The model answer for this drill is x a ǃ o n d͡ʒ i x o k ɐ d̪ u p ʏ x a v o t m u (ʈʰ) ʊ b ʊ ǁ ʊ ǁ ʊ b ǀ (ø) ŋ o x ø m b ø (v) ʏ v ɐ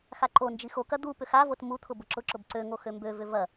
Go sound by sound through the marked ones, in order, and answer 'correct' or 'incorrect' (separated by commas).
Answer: incorrect, correct, correct